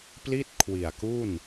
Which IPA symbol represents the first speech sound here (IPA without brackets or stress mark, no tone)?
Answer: p